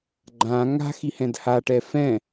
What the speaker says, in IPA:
ɡ͡ǃ ã ŋ a̤ x i h ɛ̃ d h a ʈ ɛ f ɛ̃

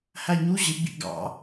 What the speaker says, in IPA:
h æ ɲ u ʑ ɪ ɡ͡b ḭ ɡ ɑ̰

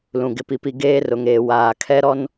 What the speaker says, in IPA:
l ũ˨ ɡ ɪ˨ p i˨ p i˨ ɡ eː˦ r ʊ˨ ŋ eː˨ w aː˨ kʰ ɛ˦ ɾ ɔ˦ n

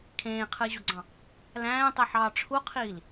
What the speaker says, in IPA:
kʰ ẽː qʰ ɯ e̯ ʑ o ɡ͡ǀ ɑ̃ | l æ̃ː tˤ ɯ ħ ɑː ʈ͡ʂʰ u qʰ iː l

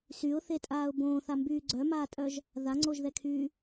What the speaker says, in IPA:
s y ʊ̯ θ e tʼ aː ʊ̯ b õː θ a m b yː ɡ͡ǀ œ m aː tʼ œ ʒ | ð a ŋ͡ǀ o ʒ ð ɛ kʰ yː

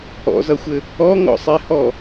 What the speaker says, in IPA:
ɔ̰ z ʌ xʷ ɘ | ɔ ŋ ɔ̰ sˤ e h ɔ

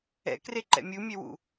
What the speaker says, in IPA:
ɛ̰ k r e ǃ ɛ̰ mʲ u mʲ ɛ w ṵ

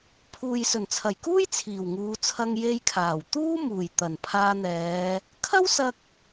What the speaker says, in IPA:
pʰ uː˨ j s ɵ˨˩ n t͡sʰ ɐ˨˩ j k uː˥ j t͡sʰ iː˨˩ w ŋ uː˨˧ t͡sʰ ɐ˧ ŋ j e˧ j kʰ aː˨˩ w t̪ uː˥ m uː˨˩ j t̪ ɐ˨˩ n pʰ aː˧ n̪ ɛː˨˧ | kʰ ɐ˥ w s ɐ˧ k̚

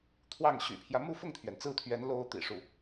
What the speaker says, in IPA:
t̪ʰ w ɑ˥˩ ŋ ɕ y̰˨˩ pʰ j ä˦ m u˥˧ f ʊ˥˩ ŋ t̪ʰ ɥ ɛ˩ n t͡s ɹ̩˥˩ t̪ʰ ɥ ɛ˧˥ n l o˧˥ ʊ̯ t̪ ḭ˨˩ ʂ u˥˩

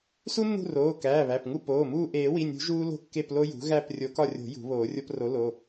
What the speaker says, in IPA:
s u˦ nː ṳ˦˨ r oː˩˧˩ k æː˩˧˩ β æ˩˧˩ p ŋ u˦˨ p oː˩˧˩ m uː˦˨ ʔ eː˨˩˦ w i˩˧˩ nʲ ṳ˨˩˦ ʒ uː˦ l o̤˦˨ kː e˦˨ p l o˦ j ṳ˩˥ ɣ æ˦˨ p rʲ o˨˩˦ k ɒ˦˨ rʲ o̤˨˩˦ j ṳ˨˩˦ β oː˨˩˦ rʲ o˦ p r o˩˥ l o˩˧˩

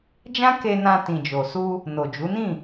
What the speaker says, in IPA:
d͡ʒ ã˦ k e˧ n ã˧ t ĩ˨ d͡ʒ o˨ s u˧ | n o˨ d͡ʒ u˨˦ n ĩ˦˨

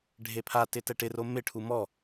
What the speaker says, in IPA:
ɖʱ e pʰ a t ɪ t ɛ ʈ ɪ r o m ɪ ʈʰ u m ɔ

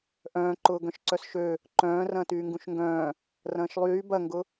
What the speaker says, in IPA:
ʔ œ̃ː ǃ ʊː ɡ œ̃ ʃ ǀ œ s ʃ ø | ǃ œ̃ː r ɐ̃ː t yː ŋ ɡ ũ ʃ ŋ ɡ œ̃ː | r ɐ̃ː ʃ lˠ yː b ɐ ŋ ɡ ʊ

